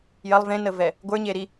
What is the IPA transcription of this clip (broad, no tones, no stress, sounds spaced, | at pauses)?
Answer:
j ɐ lˠ v ẽ n ə v ɛ | ɡʷ ə˞ ɲ e ɾ i